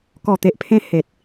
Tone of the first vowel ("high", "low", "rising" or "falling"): low